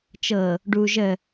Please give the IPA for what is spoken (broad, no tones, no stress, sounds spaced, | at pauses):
t͡ʃ ɤ | ɖ u ʒ ə